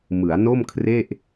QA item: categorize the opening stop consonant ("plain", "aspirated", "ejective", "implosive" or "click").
aspirated